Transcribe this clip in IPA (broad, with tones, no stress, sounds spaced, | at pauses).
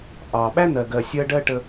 ʔ ɑ˨ ɓ æ˦ n̪ ɜ˨ ɡ ɜ˨ sʲ ɜ˧ ɖ ɜ˦ ʈ ə˧